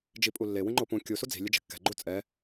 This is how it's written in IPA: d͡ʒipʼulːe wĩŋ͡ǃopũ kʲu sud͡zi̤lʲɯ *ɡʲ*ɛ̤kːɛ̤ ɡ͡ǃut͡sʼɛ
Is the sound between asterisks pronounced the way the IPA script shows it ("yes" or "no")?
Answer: no